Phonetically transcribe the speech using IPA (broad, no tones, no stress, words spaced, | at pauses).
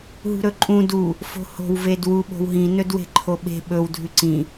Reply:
ɦṳɾɵǃʼũ du | fo̤ho̤w vedwu ɓo̤wɦĩ nɵdwe̤ǃʰoɓe̤ ɓɵw dʱʉǀĩ